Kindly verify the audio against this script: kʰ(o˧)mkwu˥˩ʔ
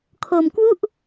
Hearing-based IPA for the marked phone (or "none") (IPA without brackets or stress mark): o˧